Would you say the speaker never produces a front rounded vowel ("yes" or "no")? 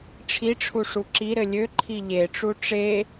no